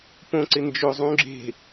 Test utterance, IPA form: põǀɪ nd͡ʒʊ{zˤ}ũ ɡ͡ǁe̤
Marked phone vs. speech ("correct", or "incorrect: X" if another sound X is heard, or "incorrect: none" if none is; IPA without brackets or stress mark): correct